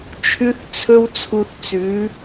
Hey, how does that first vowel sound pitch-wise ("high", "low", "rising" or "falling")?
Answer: high